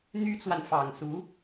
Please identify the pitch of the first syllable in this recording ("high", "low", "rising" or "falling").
high